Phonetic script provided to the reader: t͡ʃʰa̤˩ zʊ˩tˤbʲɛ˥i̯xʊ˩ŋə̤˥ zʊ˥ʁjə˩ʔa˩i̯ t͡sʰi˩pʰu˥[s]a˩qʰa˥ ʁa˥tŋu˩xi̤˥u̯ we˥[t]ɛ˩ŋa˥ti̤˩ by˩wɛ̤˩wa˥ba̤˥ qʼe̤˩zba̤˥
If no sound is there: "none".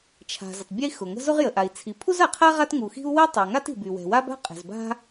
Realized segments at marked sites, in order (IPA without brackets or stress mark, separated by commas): z, tˤ